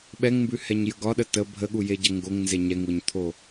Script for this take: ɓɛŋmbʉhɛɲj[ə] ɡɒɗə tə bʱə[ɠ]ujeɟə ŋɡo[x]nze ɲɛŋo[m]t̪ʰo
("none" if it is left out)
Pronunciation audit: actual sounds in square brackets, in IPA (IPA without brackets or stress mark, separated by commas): ə, ɠ, ŋ, ɲ